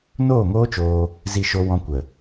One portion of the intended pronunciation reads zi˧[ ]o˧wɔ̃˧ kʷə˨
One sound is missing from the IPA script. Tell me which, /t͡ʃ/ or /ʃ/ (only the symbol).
ʃ